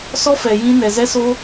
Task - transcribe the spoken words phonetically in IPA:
sɔ˦fɛ˨ jĩ˧ nɛ˨zɛ˦so˦

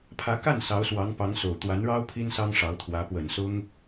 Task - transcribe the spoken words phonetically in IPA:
pʰä˧˥ka˥˩n sɑ˧˥ʊ̯swɑ˧˥ŋ pɑ˧˥ŋso˨˩ʊ̯ t̪wa˧˥nɻɑ˥ʊ̯ pʰi˥nsɑ˥ŋʂɑ˧˥ʊ̯t̪ʰwä˧˥ pwə˨˩nsʊ˥ŋ

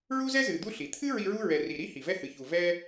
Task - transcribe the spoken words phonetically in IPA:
ɹu˥zɛ˥ zɨ˨d̪u˥ɬi˩ t̪ʰɨ˥ ɹi˦ɹu˥ɹɛ˨ri˨ ɾi˥hi˩vɛ˦ hɨ˩çu˩ vɛ˦

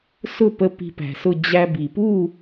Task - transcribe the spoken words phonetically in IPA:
sʊ˥˨pə˧ pi̤˧pæ̤˩sʊ˥˨ d͡ʑæ˧bi˩ pu˥˨

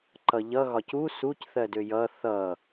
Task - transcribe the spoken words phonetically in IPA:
ǃʌʎʌ ɣɒcu suc θɜdøjʌ θʌ

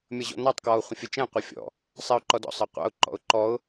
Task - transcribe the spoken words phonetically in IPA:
mʲʌʑɔ̰nɑtˤ kwɔʊ̯χʷə̃fʲət͡ʃɛ̃ qʷʌfʲɔ̰ | sˤɛʊ̯ǃɔdɔ̰ sˤʌqʷɑ̰ʊ̯ ǃɔ̰ʊ̯ǃɔʊ̯

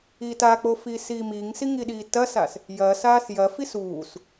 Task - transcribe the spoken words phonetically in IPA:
itak͡po fiːsiːmiːŋsi ŋiɗiːtɐsas | jɐːsaːs jɐfis uːs

